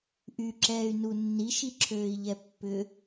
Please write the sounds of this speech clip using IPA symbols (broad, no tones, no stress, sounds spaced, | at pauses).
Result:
ʔ y ǁ ɛː y̯ n u nː i ʃ i ǁʰ øː i̯ ʎ ɛ pː ʏ